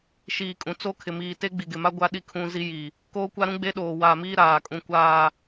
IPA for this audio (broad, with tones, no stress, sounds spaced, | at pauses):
ʃ iː˨ kʼ ũ˨ t͡s o˦ kʰ ɪ˨ m iː˨ t e˦ ɡ͡b i˨ ɡ ɪ˨ m a˦ ɡʷ a˦ ɗ i˦ kʰ ũ˦ z i˦ j i˨ | k oː˦ kʷ a˦ ɾ ũ˦ ɡ͡b e˦ ɗ oː˨ w aː˨ m iː˦ ɾ aː˨ kʼ ũ˨ kʷ aː˨